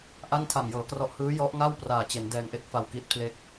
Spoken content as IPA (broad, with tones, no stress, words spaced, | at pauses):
ʔa˥˩ntʰa˨˩mjɤː˩˦krɔ˦˥ʔ hɯː˦˥jɔ˦˥ʔŋa˥˩w praː˨˩t͡ɕe˩˦n dɛː˨˩ŋʔe˦˥k̚fa˨˩w ki˥˩t̚pʰle˥˩k̚